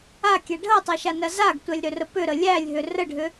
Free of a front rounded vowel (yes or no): no